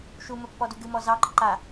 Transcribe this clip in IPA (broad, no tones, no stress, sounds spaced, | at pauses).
ʃ u m ə pː ɔ d u ɡ ɨ m ɔ z ɑ ɡ͡ǃ ə ǃ a